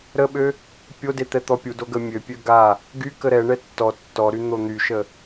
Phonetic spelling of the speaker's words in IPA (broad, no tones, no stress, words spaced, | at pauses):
ɾəɓø | pʲode t̪ɛt̪ɔpʲudo ɡəmʲøpʲø ɡa | ɡy kəɾɛɳɛ tːɔ tːɔɾy n̪on̪yʃə